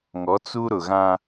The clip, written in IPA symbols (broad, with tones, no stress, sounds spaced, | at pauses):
ŋ ɔ˨˦ t͡s u˦ ɾ ʊ˨ ɣ ã˦